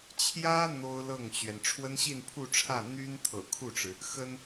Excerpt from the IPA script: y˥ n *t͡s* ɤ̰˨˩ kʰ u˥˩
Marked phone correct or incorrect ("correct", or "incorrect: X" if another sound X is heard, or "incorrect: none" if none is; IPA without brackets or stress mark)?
incorrect: t̪ʰ